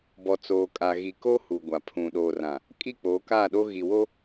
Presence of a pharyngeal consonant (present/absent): absent